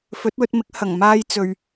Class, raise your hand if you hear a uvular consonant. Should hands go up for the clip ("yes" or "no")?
no